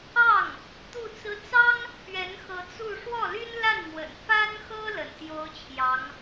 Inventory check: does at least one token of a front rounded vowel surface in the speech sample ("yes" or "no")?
yes